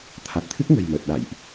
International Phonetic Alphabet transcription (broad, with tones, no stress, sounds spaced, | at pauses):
t̪ʰ a˨˩ t̚ t̪ʰ ɨ˦˥ k̚ ŋ ə̤˨˩ j m ə˨˩ t̚ ɗ a̰˧˨ j ʔ